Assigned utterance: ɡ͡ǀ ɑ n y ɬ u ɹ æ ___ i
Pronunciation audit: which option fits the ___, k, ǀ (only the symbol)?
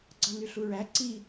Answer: ǀ